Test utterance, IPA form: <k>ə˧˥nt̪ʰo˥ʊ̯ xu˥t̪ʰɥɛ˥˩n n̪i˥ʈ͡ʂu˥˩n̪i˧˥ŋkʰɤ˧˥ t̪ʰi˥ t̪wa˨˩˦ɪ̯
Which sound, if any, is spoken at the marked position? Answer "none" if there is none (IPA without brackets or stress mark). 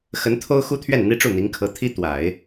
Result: x